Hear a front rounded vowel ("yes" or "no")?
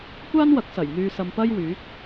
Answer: yes